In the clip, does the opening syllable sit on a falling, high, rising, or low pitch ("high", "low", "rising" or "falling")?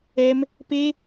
high